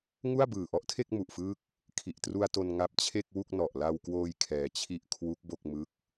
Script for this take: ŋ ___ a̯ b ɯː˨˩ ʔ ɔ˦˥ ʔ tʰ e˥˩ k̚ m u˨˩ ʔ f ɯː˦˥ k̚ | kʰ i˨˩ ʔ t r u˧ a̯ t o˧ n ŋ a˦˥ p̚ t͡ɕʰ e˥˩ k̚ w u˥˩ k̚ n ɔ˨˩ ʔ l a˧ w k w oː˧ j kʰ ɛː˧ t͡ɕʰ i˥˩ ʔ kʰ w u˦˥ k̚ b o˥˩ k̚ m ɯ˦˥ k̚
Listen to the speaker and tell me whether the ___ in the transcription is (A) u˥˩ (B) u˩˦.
A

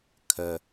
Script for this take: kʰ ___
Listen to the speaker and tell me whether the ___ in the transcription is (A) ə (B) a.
A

